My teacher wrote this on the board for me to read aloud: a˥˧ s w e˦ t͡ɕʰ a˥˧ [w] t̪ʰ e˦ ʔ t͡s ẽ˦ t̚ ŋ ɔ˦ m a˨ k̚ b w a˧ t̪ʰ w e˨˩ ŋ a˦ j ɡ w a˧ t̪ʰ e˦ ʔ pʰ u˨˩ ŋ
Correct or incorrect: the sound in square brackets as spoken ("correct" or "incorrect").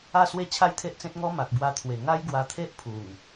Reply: incorrect